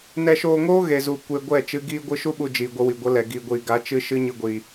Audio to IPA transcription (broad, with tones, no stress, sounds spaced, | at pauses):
n ɛ˧ ʃ oː˧ ŋ oː˦ ɣ e˨ z u˨ kʷ e˧ ɡʷ ɛ˦˨ t͡ʃ ɨ˧ ɡ iː˦ ɡʷ ɨ˦ ʃ u˦ ɓ u˧ d͡ʒ iː˨ ɡʷ ə˧ w i˨ ɡʷ ə˨˦ l ɛ˨ ɡ iː˨ ɡʷ iː˨ ɡ a˨˦ t͡ʃ ɨ˦ ʃ ɨ˦ ɲ ɨ˧ ɡʷ iː˨